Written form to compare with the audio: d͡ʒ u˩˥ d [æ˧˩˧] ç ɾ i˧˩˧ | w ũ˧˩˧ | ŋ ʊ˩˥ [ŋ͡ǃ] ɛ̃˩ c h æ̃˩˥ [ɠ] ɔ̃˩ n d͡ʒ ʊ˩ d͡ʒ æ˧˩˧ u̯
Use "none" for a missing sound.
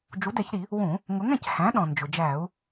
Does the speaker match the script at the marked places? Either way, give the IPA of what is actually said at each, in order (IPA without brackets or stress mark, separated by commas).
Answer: ɛ˧˩˧, ŋ, ɗ